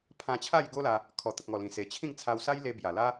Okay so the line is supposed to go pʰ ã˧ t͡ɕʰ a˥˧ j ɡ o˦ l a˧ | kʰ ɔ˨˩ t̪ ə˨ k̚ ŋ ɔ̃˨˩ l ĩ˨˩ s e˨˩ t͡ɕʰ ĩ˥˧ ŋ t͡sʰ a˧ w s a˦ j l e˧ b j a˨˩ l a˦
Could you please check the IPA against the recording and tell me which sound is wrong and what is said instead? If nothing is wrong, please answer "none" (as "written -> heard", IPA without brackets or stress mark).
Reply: ɔ̃˨˩ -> ɔ˨˩